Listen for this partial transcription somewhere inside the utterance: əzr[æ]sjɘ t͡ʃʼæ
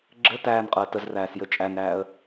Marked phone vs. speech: incorrect: æː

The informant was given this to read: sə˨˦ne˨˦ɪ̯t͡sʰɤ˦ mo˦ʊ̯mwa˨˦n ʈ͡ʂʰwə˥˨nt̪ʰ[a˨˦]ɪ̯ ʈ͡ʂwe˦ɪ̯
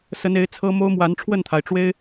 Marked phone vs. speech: incorrect: a˩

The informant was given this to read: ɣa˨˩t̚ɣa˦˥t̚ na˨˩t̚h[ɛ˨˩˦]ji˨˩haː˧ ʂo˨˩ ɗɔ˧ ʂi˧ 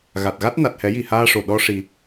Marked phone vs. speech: correct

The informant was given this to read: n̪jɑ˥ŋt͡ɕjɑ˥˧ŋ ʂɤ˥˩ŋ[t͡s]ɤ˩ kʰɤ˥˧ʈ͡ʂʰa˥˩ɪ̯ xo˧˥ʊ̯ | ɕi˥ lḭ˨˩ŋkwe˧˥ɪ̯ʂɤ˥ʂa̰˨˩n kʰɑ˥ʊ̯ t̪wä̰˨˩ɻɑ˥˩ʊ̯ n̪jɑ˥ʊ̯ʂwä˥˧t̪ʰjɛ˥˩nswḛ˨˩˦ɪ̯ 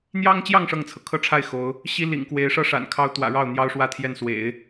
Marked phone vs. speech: incorrect: t͡sʰ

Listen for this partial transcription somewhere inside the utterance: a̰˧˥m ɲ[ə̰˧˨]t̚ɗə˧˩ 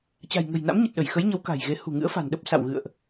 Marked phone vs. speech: incorrect: ə˨˩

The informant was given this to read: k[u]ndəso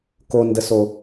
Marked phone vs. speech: incorrect: o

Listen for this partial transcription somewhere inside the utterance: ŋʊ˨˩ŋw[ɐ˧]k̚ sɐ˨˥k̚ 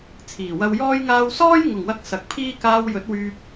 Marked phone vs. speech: correct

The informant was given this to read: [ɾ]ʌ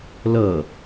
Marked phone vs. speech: incorrect: l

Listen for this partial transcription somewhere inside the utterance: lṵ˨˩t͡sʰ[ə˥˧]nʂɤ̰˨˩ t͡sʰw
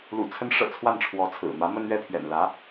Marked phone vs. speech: incorrect: ə˧˥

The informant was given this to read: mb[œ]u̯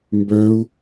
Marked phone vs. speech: correct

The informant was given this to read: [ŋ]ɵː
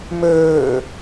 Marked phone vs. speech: incorrect: m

